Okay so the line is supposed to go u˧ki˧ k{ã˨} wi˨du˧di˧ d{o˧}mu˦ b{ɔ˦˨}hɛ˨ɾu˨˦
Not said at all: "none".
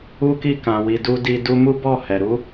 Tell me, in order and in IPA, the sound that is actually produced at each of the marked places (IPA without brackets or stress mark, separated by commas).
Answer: ã˨, u˧, ɔ˦˨